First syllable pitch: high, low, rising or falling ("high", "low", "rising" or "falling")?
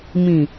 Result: low